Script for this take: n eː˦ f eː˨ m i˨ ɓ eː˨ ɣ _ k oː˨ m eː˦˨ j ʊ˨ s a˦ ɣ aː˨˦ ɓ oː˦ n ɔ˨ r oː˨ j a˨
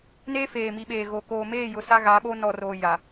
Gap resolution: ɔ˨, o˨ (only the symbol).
o˨